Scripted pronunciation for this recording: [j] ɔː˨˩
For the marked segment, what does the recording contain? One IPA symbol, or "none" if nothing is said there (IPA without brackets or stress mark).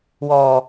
w